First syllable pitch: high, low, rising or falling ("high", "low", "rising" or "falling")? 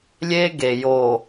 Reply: high